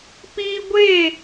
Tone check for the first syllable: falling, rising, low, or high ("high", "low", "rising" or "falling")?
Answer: high